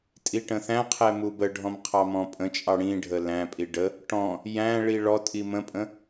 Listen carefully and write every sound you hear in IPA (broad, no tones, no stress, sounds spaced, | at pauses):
tʼ i ʈ ə̃ θ æ̃ qʰ ɛ m u b ə ɖʱ ɔ̃ m qʰ ɑ m ɔ̃ pʼ ə̃ t͡ʃʼ ɑ ɽ ĩ ɖʱ ə l æ̃ pʼ i ɖ ə | ʈ ɔ̃ | j æ̃ ɭ i ɭ ɔ tʼ i m ə̃ pʼ ə̃